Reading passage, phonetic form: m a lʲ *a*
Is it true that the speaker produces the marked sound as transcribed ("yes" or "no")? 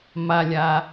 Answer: yes